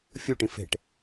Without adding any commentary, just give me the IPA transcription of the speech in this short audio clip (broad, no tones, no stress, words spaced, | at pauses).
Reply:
fʲuʈĩ fe̤ʈ